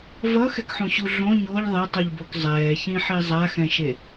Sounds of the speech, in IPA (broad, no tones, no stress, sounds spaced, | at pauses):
v ʌ x ɛ k ħ ũ ɕ u ɮ õ ɲ o ʎ ðˤ e tˤ u ʎ b o k zˤ ɛː ç ĩ ħ i zˤ a x ɛ̃ ʃ e